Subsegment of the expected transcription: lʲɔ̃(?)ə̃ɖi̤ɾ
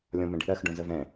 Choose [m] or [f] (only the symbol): m